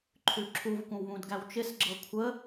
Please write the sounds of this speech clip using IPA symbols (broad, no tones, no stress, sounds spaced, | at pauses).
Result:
ǃʰ ʉ ǁʰ u v kʷ ə̃ w β ũ d ɡ æ w t͡ʃ ɪ s ɡ͡ǁ ɤ kʷʰ ə